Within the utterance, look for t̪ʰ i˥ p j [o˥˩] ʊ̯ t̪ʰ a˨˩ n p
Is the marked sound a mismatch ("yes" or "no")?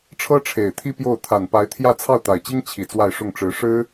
no